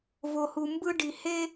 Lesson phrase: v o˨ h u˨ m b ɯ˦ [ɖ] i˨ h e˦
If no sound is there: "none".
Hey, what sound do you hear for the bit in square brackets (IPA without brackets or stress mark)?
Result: ɖ